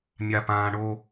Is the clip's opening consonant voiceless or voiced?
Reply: voiced